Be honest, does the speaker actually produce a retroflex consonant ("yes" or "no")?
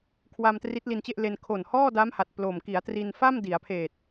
no